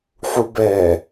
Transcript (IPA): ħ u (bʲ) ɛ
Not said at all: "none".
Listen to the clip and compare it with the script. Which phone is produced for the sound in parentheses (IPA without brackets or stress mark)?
b